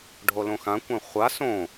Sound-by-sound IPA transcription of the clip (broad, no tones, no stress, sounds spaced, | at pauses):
ɖʱ o l õ x ã kʷ ã χʷ a s õ